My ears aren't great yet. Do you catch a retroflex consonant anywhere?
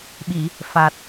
no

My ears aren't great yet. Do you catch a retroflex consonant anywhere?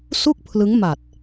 no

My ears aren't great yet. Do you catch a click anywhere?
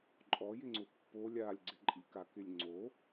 yes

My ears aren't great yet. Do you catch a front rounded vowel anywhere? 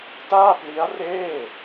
no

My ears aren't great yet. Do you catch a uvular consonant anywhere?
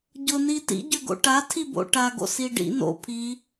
no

